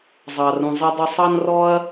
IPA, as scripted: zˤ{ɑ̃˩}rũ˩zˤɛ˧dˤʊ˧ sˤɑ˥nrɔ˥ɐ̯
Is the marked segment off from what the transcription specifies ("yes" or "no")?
yes